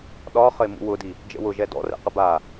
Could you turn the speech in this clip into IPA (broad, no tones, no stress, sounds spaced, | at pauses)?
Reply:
ɗ ɒ χ ə ɪ̯ m ṵ w ʊ d i | d͡ʒ ə̰ w ʊ ʒ ɛ d ɔ̰ r ɛ̰ q ə b a